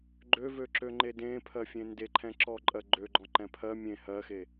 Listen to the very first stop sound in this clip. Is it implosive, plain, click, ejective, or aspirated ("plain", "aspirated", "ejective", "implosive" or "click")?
click